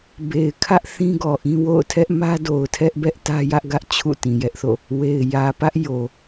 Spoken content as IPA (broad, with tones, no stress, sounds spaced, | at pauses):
b e˨ ɪ̯ kʰ ä˦ ʔ θ ĩ˦ ɡ ɔ˨ ʔ ĩ˦ w o̰˦˨ ʊ̯ tʰ ɛ˦ ʔ m ä˦ d o˨ ʊ̯ tʰ ɛ˦ ʔ b ɛ˦ ʔ t ä˦ j ä˦ ʔ ɡ ä˦ ʔ t͡ɕʰ ṵ˦˨ t ĩ˨ j ɛ˦ ʔ θ o̰˦˨ | w e˨ ɪ̯ j ä˨ p ä˦ ʔ j o˨